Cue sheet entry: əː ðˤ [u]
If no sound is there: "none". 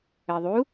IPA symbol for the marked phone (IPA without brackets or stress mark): u